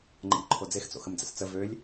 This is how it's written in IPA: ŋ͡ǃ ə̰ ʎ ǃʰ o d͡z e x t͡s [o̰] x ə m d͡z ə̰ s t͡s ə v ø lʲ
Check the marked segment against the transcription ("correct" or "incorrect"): correct